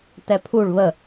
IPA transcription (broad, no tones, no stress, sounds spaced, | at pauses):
t ɛ pʰ u ɭ β ə